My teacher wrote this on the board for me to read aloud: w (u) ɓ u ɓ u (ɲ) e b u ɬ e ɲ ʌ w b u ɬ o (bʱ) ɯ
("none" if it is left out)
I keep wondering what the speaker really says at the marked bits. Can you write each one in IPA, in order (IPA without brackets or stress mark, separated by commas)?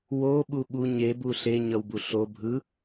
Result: o, ɲ, bʱ